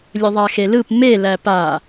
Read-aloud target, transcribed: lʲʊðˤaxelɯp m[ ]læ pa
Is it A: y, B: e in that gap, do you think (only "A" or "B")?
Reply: B